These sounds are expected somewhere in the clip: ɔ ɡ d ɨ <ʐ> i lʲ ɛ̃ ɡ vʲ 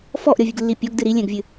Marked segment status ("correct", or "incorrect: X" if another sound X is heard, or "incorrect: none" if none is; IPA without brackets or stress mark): incorrect: ɾ